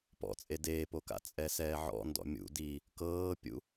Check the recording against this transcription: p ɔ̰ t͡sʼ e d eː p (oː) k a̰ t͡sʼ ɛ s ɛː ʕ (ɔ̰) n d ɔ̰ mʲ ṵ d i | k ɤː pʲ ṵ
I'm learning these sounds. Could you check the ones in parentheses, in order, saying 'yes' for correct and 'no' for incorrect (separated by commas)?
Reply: no, yes